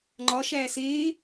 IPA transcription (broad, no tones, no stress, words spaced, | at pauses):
ŋ͡ǃɒ ʃæːseː